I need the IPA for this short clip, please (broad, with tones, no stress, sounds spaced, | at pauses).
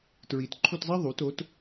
t ɹ i˨˩˦ t ǃʰ u˥˧ t zˤ ɛ˥ ðˤ u˩˥ t o˩˥ t